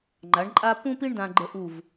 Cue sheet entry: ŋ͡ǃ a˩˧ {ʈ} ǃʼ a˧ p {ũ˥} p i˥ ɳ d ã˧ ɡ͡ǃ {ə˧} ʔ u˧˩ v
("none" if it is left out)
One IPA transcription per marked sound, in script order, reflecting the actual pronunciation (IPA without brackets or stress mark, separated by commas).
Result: ɳ, ũ˥, ə˧